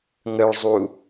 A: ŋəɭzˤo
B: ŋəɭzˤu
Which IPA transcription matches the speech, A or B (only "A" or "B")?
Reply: B